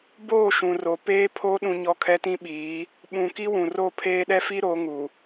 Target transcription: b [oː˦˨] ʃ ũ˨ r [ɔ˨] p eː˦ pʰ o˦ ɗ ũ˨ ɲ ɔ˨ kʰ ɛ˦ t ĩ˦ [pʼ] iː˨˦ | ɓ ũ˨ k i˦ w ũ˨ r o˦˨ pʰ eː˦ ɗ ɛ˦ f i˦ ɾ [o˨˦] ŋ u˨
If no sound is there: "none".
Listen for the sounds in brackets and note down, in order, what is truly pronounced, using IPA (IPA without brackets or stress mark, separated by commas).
oː˦˨, o˨, ɓ, o˨˦